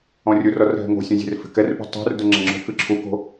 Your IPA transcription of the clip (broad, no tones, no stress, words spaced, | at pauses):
ɔ̃rʲurɔr ɦɛ̤ŋo̤sʲũ zʲe̤rfe̤kɛrpṳ tˤṳrdʊ ŋ͡ǁɛ̃ŋ͡ǁo̤kɨ ǁʰuko̤